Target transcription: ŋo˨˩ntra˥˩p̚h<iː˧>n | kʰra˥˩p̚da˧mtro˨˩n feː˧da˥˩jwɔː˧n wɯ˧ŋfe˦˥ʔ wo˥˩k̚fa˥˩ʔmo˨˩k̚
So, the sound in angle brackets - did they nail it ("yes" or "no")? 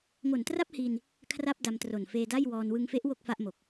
yes